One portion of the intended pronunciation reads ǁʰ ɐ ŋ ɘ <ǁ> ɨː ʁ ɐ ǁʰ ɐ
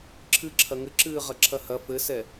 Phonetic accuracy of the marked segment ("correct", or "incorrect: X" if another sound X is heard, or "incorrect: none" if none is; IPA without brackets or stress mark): correct